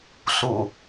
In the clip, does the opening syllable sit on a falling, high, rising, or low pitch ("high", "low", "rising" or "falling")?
low